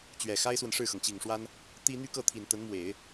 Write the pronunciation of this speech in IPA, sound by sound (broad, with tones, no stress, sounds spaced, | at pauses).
t͡ɕ ɥ ɛ˨˩ x a˥ ɪ̯ s w ə˨ n ʂ ɻ̩˥˩ x ɤ˩ ŋ t͡ɕ i˨˩ ŋ ʂ w a˥ n | t̪ i˥ n̪ y˥˧ k ɤ˥˩ t̪ʰ i˨˩ n t̪ ə˧˥ n m w e˨˩˦ ɪ̯